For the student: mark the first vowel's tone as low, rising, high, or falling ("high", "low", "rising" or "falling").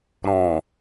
low